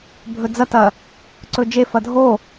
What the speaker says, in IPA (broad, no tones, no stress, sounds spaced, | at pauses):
bʱ ɵ d͡z ɐ t ɐ | ǀ ɵ d͡ʒ e f ɐ dʱ o